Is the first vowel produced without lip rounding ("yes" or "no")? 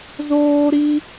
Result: no